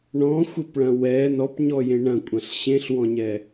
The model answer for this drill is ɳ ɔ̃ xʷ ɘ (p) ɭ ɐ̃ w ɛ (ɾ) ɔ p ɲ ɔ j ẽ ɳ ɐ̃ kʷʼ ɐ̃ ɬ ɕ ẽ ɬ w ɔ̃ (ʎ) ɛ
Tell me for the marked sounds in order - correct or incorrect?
correct, incorrect: n, incorrect: ɲ

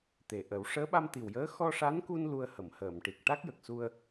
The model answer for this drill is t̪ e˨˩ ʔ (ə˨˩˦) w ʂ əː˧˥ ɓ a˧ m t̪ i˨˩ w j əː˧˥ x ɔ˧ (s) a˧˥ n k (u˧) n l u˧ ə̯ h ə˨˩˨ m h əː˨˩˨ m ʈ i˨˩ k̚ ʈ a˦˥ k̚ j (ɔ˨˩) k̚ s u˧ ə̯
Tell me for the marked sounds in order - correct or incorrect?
correct, incorrect: ʂ, correct, incorrect: ə˨˩

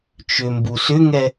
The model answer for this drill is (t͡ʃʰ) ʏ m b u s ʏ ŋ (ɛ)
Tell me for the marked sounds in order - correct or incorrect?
incorrect: t͡ʃ, correct

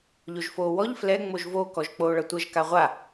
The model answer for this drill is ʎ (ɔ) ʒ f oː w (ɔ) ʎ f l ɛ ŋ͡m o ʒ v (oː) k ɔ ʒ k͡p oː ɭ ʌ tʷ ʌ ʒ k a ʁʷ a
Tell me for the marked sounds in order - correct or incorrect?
incorrect: o, correct, correct

